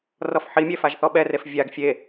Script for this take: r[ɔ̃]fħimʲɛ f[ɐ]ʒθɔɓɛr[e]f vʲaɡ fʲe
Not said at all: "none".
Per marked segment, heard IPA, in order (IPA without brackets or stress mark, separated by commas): ɔ, a, e